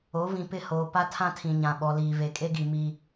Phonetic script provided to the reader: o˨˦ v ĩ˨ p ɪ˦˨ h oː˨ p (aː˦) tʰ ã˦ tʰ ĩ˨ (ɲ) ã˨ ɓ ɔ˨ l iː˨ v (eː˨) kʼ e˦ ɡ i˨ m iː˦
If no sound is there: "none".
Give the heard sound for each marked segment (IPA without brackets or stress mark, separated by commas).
a˦, ɲ, e˨